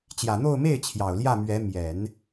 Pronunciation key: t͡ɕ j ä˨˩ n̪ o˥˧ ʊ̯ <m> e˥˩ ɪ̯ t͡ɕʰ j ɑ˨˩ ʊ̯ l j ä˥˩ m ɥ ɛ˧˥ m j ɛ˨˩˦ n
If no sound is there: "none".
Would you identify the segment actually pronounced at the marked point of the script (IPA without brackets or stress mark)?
m